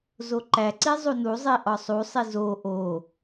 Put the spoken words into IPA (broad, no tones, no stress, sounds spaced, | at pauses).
z o ǃ æ ǀ i zˤ u n u zˤ i ʔ ɒ sˤ u sˤ i z o ʔ o